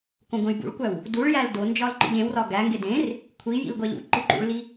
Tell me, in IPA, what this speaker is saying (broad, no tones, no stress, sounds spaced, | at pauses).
k õ ɡʷ ẽ j b ṵ ɭ kʷ æ w | d u ɭ j æ l d o n d͡ʒ ɒ l ǃ ḭ ʎ ẽ w r ɒ ɡ æ ŋ ɡ e d ẽ r | kʷʰ i j ḭ l ɡʷ æ ʎ ṵ ǃ i ǃ ṵ ɭ l i